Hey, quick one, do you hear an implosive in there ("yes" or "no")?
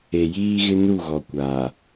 no